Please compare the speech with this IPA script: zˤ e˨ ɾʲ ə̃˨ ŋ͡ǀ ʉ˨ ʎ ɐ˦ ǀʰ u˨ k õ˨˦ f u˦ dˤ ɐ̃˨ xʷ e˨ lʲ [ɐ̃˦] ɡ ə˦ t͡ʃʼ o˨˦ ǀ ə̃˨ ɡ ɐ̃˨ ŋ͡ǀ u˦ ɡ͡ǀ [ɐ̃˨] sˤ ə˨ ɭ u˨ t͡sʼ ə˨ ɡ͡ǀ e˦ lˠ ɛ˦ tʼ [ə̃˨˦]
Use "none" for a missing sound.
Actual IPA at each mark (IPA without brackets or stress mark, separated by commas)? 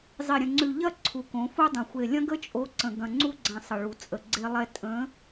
ɐ̃˦, ɐ̃˨, ə̃˨˦